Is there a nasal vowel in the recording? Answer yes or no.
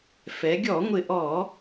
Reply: no